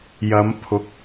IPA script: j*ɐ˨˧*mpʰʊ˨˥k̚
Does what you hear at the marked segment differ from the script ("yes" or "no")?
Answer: no